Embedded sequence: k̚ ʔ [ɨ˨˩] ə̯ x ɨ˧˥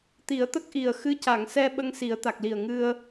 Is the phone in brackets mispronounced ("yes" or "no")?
yes